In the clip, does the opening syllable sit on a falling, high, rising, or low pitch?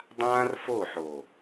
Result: high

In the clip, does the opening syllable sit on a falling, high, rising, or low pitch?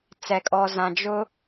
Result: low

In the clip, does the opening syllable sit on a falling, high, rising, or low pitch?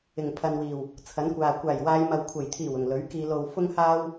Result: low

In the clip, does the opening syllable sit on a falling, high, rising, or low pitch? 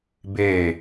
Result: falling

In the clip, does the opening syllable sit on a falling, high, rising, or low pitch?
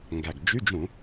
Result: low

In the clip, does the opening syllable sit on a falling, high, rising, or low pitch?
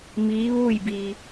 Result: rising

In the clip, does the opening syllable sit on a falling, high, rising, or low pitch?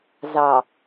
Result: low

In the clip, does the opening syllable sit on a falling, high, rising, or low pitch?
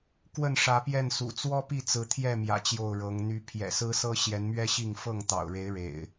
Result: falling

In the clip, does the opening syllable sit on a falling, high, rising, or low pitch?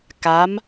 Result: rising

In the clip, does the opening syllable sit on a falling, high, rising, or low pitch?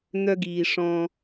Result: high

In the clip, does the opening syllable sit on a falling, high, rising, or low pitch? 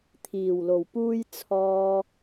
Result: low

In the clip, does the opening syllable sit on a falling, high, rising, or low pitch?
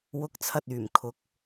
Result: rising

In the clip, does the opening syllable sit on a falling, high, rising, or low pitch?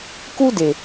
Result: high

